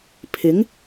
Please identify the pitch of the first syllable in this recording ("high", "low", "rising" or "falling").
rising